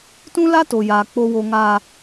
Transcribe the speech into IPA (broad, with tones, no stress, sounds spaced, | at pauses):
t ũ˦ l a˦ t o˨ j aː˨ k͡p o˨ w o˨ ŋ a˨